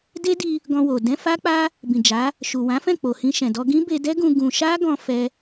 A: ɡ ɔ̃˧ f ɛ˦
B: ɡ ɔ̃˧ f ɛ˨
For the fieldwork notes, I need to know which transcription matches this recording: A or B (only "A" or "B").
A